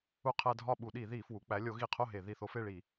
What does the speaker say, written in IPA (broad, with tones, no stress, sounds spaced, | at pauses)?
u˦ qʰ æ˦ dʱ ɒ˥˨ ɓ u˧˩˧ ɗ i˧˩˧ ð i˧˩˧ f w u˩˧ k͡p æ˨˥ lʲ o˨˥ ɣ i˧˩ qʰ o˥˨ ɦ e˧˩˧ ð i˧˩ θ o˦ f e˥˨ ɭ i˧˩˧